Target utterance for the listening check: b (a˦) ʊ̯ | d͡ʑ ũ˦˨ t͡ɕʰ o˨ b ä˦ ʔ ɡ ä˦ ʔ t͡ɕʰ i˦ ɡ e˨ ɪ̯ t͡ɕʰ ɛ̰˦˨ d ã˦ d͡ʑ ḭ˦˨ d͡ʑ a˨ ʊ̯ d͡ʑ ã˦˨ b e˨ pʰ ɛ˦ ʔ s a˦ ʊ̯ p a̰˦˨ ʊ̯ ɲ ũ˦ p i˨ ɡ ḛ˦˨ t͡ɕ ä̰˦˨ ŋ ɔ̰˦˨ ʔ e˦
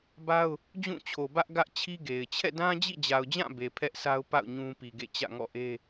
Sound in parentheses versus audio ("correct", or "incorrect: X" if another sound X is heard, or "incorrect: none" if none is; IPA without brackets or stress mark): correct